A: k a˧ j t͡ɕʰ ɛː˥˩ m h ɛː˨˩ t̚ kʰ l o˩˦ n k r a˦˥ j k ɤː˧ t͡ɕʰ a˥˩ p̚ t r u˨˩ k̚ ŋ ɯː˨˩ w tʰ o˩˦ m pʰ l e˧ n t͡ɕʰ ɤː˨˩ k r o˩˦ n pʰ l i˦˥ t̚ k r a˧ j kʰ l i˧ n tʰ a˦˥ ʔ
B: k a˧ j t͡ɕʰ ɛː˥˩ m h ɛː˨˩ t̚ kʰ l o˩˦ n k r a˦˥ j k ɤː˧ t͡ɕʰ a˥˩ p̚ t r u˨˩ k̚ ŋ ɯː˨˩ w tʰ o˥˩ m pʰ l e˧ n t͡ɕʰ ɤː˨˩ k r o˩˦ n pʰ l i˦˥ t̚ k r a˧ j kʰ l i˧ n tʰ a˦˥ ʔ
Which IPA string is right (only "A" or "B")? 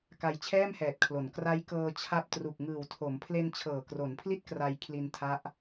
A